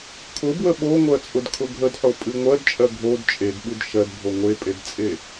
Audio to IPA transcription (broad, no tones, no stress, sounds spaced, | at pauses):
kʰ ʊ b w ə ɓ o ŋʷ ɜ t͡sʼ ʊ d kʰ ʊ ɡʱ ə d ħ o pʼ ɨ ŋʷ ɜ d t͡ʃʼ ɜ ɡʱ o d t͡ʃʼ e d ɓ ɨ d ʃ ɜ d bʱ o ŋʷ e pʼ e d t͡sʼ e